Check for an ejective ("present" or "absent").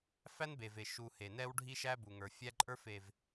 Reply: present